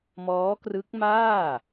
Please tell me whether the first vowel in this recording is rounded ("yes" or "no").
yes